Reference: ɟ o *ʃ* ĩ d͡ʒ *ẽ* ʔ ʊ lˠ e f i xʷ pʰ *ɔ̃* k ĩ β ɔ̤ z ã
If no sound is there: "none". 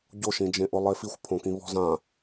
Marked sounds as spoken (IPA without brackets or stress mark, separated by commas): ʃ, ẽ, õ